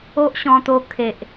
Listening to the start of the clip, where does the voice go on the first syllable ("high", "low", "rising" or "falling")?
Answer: high